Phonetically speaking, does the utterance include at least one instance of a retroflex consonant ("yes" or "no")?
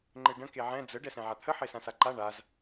yes